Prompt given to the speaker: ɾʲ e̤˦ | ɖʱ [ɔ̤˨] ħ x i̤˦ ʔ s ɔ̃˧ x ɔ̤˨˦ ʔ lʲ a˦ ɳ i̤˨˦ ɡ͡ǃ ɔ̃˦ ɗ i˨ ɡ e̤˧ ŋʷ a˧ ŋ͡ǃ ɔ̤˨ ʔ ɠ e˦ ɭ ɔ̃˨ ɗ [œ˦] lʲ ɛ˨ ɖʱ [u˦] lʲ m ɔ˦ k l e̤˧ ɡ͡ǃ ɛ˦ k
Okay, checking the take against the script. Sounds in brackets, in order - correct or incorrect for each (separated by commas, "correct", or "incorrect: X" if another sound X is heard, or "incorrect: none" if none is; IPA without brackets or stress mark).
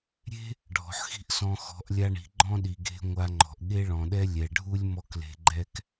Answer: correct, incorrect: ɛ˦, correct